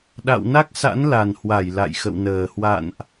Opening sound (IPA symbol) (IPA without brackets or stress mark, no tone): ɗ